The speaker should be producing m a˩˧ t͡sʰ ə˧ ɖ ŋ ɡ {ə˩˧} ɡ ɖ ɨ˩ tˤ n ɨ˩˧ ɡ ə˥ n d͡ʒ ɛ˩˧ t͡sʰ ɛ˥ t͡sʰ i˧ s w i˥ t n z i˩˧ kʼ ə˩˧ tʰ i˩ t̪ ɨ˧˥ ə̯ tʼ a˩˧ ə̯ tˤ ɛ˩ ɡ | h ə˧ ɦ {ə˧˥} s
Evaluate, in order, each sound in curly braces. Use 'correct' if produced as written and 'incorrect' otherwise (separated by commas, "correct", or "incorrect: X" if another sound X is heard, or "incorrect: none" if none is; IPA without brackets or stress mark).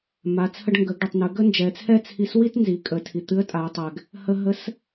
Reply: correct, correct